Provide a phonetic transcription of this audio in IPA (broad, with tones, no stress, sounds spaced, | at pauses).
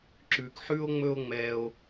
ǁ ʉ˨ k ħ ʉ˧ o̯ ŋ͡m ɵ˧ o̯ ŋ͡m ɛ˧ o̯